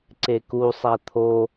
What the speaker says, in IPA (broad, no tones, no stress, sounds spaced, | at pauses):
ǀ e k u sˤ æ t̪ʰ o